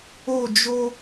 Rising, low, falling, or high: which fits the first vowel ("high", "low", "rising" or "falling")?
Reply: falling